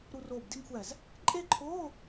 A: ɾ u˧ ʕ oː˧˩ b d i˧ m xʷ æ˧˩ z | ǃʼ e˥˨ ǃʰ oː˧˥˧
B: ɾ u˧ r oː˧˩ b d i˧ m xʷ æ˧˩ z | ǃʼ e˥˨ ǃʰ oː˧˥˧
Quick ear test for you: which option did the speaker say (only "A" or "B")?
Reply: B